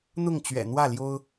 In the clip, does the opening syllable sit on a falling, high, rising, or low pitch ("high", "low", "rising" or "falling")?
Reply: falling